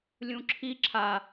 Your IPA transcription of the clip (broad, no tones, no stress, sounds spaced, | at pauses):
lʲ ũ ǁʰ i ǁʰ a